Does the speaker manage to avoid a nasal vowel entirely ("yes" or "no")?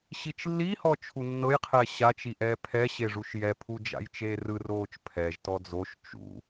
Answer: yes